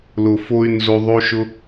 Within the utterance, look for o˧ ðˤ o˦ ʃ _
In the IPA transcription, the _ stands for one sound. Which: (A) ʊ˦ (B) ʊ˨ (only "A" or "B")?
A